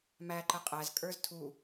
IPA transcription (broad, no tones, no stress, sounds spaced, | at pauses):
m æ ǃ ə qʼ æ z kʼ ə˞ z tʰ u